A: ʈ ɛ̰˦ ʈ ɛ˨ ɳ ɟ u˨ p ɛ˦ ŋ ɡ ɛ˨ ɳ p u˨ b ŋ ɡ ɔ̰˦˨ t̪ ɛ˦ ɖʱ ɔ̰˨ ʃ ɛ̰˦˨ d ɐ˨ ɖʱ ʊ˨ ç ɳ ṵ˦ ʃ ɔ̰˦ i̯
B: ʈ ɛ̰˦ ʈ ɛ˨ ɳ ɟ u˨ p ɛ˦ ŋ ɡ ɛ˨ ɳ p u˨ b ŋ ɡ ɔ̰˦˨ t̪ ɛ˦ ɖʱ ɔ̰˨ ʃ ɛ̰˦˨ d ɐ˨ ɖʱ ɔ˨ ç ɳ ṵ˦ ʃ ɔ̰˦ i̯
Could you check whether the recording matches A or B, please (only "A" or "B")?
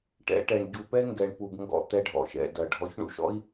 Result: B